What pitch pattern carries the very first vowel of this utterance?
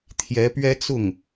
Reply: rising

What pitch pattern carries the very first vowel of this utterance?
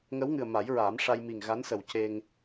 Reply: rising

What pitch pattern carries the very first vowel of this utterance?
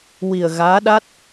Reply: low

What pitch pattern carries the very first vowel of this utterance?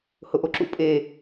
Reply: low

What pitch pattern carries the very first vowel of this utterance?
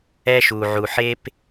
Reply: high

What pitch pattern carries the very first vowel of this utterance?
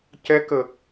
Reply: rising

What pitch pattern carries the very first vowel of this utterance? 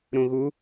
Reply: low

